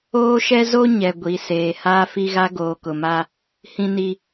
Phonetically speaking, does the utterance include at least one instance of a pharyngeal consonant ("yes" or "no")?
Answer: no